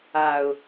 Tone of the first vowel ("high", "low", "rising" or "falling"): low